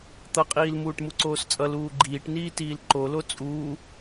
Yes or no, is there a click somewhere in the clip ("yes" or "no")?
yes